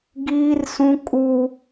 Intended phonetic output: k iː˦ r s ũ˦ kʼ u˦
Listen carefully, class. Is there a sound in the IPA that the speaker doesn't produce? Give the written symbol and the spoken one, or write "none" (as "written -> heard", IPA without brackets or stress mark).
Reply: k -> ɡ